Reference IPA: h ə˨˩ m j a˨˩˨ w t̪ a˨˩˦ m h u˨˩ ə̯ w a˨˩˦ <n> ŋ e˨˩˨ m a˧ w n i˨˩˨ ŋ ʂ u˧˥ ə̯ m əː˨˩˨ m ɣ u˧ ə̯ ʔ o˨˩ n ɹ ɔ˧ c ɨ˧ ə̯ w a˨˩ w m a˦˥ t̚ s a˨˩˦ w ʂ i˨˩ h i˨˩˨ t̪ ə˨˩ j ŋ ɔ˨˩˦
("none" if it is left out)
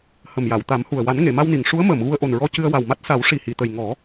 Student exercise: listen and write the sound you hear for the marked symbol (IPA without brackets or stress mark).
n